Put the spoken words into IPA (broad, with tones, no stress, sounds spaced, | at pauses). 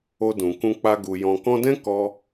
o˧ d ũ˨ k ũ˧ k͡p a˧ ɡ u˨ j ɔ̃˨ k ɔ̃˧ d ɛ̃˦ k ɔ˧